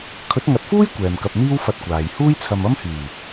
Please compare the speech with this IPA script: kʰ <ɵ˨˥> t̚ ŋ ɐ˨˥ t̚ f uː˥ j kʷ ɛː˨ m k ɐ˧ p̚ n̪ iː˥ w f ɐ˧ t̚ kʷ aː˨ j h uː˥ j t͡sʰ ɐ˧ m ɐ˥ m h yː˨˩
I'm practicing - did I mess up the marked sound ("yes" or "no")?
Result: no